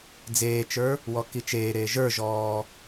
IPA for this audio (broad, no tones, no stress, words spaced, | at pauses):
d͡zeːt͡ʃə˞ | wɔkit͡ʃeːɾeː ʒə˞ʒɔː